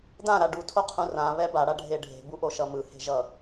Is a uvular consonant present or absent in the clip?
present